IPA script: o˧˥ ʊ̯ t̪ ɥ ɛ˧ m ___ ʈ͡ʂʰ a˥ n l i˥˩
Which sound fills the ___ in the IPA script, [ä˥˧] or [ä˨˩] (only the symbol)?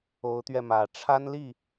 ä˨˩